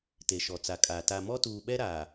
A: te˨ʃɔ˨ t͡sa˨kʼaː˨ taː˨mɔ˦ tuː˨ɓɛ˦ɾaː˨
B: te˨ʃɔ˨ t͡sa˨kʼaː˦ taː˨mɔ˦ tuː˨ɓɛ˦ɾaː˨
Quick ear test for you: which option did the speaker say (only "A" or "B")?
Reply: A